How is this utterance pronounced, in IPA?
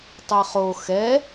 tˤ ɛ χ o x ɛ

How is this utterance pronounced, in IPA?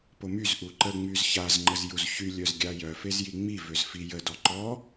p o m y z ʔ u ǃ ə ŋ͡m y z ç a z ŋ͡ǃ ə z j u z ç y lʲ œ z ɡʲ a j œ f e z j i ŋ͡m i v ø z f i j ə d ɔ ǃ ɔ

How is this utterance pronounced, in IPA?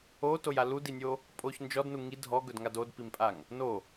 o t o j a l u d i nʲ o | pʼ o ç n d͡ʒ ɔ d n u ŋ i dʱ ɔ ɡ ɵ d ŋ a d o d p i m pʼ a ŋ | n o

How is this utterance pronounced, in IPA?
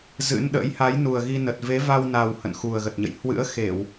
z ɨ̰˧˥ n ɗ ə̰˧˥ j h a˨˦ j n u˨˩ ə̯ ɣ i˧ n ə˨˩ t̚ v e˨˦ v a˧ w n a˨˩ w h ə̰˧˨ n x u˨˩ ə̯ ɣ ə˨˩ t̚ ɲ ə̰˧˨ j h w ɨ̰˧˥ ə̯ x e˧˩˨ w

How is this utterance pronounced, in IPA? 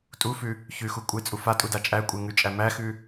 tʼ u f ʉ | ç ʉ x u kʷʼ e t͡sʼ u f a tʼ u d a t͡ʃʼ æ kʷʼ e ŋ ʉ t͡ʃʼ æ m æ x ʉ

